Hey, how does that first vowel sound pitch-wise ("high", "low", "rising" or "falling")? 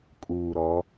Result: low